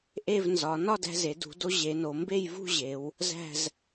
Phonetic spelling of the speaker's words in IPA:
ʔ e˥˧ v n z ɒ˩˧ n ɒ˥˧ d æ̤˧ z e˩˧ d ṳ˩˧ d o˧ ʑ e˩˧ n o˩˧ m b e˥˧ j v ṳ˥˧ ʑ e˩˧ w | z æ̤˥˧ z

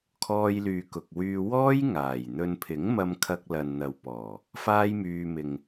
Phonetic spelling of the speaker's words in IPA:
kʰ ɔː˧ j l yː˨ k ʊ˨ k̚ w yː˧ w ɔː˥ j ŋ aː˨˩ j n̪ ɵ˧ n pʰ ɪ˨˥ ŋ m ɐ˧ m kʰ ɐ˧ k̚ l ɐ˨ n n̪ ɐ˨ w p ɔː˨˩ | f aː˥ j m yː˧ m ɪ˨ ŋ

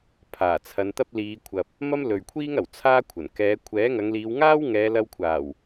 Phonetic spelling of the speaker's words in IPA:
pʰ aː˨˩ t͡sʰ ɐ˨˧ n t̪ ɐ˥ p̚ l iː˨˧ kʷʰ ɐ˨ p̚ | m ɐ˥ m l ɵ˨ ɥ kʷʰ iː˥ ŋ ɐ˨˩ w t͡sʰ aː˥ kʷʰ ɐ˨˩ n k ɛː˨˧ kʷʰ ɛː˨˥ ŋ ɐ˨˧ ŋ l iː˨˧ w ŋ aː˥ w ŋ ɛː˨˧ l ɐ˧ w kʷʰ aː˨˩ w

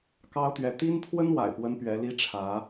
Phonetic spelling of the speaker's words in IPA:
k ɑ˥ ʊ̯ t̪ ɥ ɛ˧˥ t̪ i˥ n pʰ w ə˥ n w a̰˨˩ ɪ̯ p w ə˥ n p ɥ ɛ˧˥ l i˥ ʈ͡ʂʰ ä˧˥

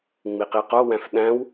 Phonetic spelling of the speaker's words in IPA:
ŋ͡m i q i q o w æ̃ f ɗ æ̃ w

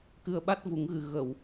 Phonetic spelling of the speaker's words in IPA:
k ɨ˧ ə̯ ɓ a˦˥ t̚ v u˨˩˦ ŋ ɣ ɨ˨˩ ɣ ə˨˩˨ w

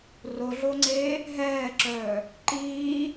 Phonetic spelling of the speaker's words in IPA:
r o ɮ o ŋ͡ǀ eː | ɦ ɛː ǁ œː | ǃ iː

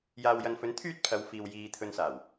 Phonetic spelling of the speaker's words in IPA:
j aː˨ w j ɐ˨ n f ɵ˨˥ n t̪ʰ yː˥ t̚ pʰ ɐ˨˧ w f iː˨ w j iː˨ t̪ʰ ɵ˧ n s aː˨˩ w

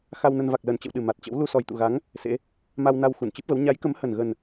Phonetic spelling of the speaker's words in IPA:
x a˧ w n ə˧ n v a˨˩ k̚ l əː˨˩ n t͡ɕ ə̰˧˨ w ɗ ɨ˨˩ m a˨˩ t̚ t͡ɕ ə̰˧˥ w l u˧ s ɔ˨˩ j t̪ ṵ˧˨ ɣ a˨˦ ŋ | s ḛ˧˥ | m a˧ w n a˧ w x u˧˩ n t͡ɕ ɨ˦˥ p̚ v ə˨˦ w ɲ a˨˦ j k ə˨˦ m h ə˨˩ n ɣ ə˨˩ n

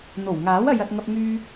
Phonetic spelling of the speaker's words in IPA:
n̪ o˨˩ w ŋ aː˨˥ w ɐ˧ j ɐ˧ t̚ ŋ ɐ˧ p̚ ŋ yː˧

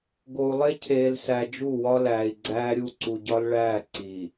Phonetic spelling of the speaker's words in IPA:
ɡ o˨ u̯ lˠ e˦ cʰ eː˨ l s æ˨ d͡ʒ u˦˨ w ɒ˦ l æː˨ i̯ ɡ͡ǀ æː˦ ɾʲ u˦˨ ǀ u˨ ɟ ɒ˦ l ɭ æː˦˨ ǀ i˨

